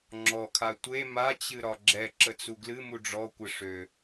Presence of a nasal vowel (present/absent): absent